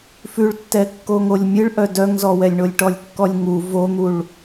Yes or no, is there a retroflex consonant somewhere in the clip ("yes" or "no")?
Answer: yes